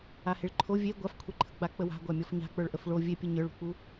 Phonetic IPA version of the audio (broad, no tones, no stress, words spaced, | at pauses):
aheɭǃʰo vʲe ɡʷafkʷʰeǃʰə ɡ͡bak͡pəwa̤ ɡʷamʲɔfɲa̤k͡pə˞ɭ ʔəfɭo vʲepʲə ɲə˞ɭṳk͡pu